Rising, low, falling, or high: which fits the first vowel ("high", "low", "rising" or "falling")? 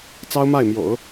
high